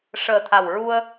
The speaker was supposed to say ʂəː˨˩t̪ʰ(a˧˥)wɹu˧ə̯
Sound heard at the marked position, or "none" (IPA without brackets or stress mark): a˨˩